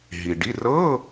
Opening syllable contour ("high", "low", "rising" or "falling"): low